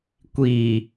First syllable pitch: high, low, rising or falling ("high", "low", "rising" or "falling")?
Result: low